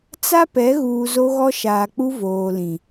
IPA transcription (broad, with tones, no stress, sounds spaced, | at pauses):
t͡s a˦ p ɛ˨˦ ɣ uː˨ z o˦ ɣ ɔ˦ ʃ aː˨ k͡p u˦ v oː˨ l ĩ˨